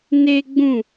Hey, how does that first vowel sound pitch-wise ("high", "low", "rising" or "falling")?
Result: high